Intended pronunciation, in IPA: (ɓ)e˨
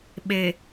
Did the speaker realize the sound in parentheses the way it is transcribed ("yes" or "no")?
yes